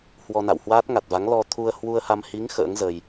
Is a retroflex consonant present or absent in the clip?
absent